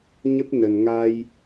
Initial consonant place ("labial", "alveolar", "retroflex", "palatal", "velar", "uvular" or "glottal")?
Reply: palatal